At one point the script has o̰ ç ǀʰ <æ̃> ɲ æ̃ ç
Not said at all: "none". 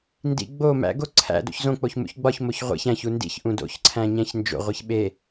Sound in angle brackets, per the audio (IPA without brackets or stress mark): æ̃